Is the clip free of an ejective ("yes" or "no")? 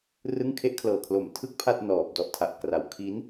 yes